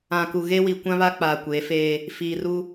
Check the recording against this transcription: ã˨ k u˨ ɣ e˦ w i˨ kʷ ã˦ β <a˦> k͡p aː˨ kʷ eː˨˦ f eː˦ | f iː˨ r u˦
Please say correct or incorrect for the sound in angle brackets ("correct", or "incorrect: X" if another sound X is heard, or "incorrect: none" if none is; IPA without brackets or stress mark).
correct